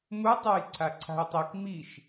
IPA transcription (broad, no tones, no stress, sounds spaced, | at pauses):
m u tˤ a j ǀʰ a ǀʰ a̤ j tˤ i k m i ʃ